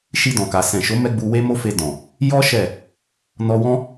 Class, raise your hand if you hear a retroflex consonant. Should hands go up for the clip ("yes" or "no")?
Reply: no